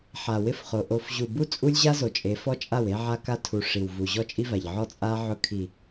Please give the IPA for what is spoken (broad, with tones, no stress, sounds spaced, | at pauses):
ħ a˨ w ɪ˦ f χ o˨ ʔ o˨ f ʑ u˨ b u˦ t͡sʼ u˦ lʲ ʑ a˦ z o˨ t͡ʃʼ e˨˦ f ɔ˦ t͡ʃʼ a˦˨ w e˦ ʕ a˦ k a˦ tʰ u˨ ʂ i˨ w v u˨ ʑ ɔ˦ t͡ʃʼ i˦ v a˨ ʎ ʕ ɔ˦ t͡sʼ a˦ ʕ ʊ˦ kʰ i˨